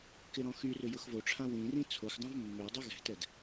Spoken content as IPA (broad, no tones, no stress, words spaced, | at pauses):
kɪɾɔ̃xyrʏ jʊxvoʈ͡ʂʰã wĩrĩ t͡sʰoxdˤãv mːʏu̯dˤo ɣɛ̤tɛd